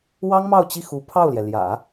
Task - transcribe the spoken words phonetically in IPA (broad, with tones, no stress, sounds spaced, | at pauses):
w ɑ˥ ŋ m ɑ˥˧ ʊ̯ t͡ɕ i˥˩ x u˧˥ pʰ ɑ˥˩ ʊ̯ l j ɛ˩ l j ä̰˨˩˦